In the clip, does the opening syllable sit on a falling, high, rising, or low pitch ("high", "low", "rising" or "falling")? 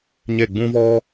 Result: falling